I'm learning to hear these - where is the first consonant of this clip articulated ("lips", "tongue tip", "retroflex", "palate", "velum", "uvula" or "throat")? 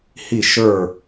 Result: throat